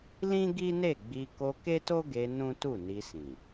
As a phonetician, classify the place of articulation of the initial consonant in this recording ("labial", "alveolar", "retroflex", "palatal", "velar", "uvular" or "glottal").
alveolar